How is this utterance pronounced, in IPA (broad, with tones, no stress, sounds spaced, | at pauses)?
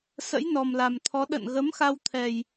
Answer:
s ə̰˧˥ j n ɔ˨˩ m l a˨˩ m t̪ʰ ɔ˨˦ ɗ ə̰˧˨ n ɣ ə˨˦ m x a˧ w t̪ʰ ɛ˨˩ j